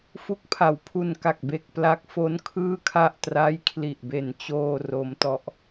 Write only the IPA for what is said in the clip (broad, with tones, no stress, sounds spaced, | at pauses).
f u˦˥ k̚ pʰ a˩˦ w pʰ u˧ n k a˨˩ k̚ b e˨˩ k̚ p l a˦˥ k̚ f o˦˥ n kʰ ɯː˥˩ kʰ a˥˩ ʔ t r a˦˥ j kʰ l i˨˩ ʔ b e˨˩ n t͡ɕ oː˧ r o˦˥ m t ɔ˦˥ ʔ